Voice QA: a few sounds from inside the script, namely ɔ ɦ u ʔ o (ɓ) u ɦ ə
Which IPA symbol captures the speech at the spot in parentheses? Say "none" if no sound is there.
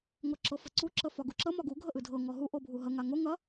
bʱ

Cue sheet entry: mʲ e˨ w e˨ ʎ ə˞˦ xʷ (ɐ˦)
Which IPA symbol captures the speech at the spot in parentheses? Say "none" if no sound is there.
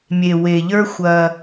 ɐ˦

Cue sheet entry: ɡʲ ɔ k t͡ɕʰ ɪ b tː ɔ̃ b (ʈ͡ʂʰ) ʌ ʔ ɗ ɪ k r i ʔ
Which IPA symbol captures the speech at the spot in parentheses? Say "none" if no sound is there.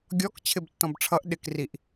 ʈ͡ʂʰ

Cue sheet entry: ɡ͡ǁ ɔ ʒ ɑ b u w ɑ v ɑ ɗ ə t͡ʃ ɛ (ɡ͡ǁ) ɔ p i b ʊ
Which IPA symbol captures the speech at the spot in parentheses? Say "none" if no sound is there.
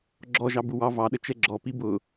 ɡ͡ǁ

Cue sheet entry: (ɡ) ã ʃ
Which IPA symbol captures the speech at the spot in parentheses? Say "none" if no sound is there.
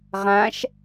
ʁ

